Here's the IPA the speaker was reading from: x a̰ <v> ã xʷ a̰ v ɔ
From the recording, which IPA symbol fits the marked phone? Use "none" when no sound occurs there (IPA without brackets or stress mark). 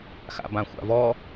b